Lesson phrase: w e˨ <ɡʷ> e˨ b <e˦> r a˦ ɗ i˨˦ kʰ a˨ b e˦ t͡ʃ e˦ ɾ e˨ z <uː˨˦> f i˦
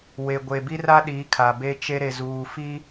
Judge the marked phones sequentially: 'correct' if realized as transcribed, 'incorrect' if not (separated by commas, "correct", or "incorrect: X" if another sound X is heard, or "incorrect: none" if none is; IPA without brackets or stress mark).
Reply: correct, incorrect: i˦, incorrect: uː˨